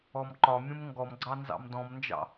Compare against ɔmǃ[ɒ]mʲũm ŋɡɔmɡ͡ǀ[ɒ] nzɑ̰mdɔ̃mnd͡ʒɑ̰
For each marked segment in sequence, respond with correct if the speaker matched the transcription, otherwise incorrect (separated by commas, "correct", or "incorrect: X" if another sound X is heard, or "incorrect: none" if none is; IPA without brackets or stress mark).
correct, incorrect: ɑ